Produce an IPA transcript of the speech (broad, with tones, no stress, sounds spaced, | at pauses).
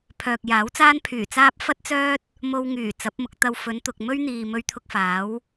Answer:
pʰ œː˨ k̚ j aː˨˥ w t͡s aː˥ n pʰ yː˨˩ t͡s aː˥ p̚ f ɐ˥ t̚ t͡s œː˥ t̚ | m o˧ w ŋ yː˨˩ t͡s ɐ˨˥ p̚ m ʊ˨˥ k̚ t̪ ɐ˧ w f ɵ˨˧ n t̪ ʊ˨ k̚ m ɵ˥ ɥ n̪ iː˨ m ɵ˧ ɥ t̪ʰ ʊ˧ k̚ f aː˨˥ w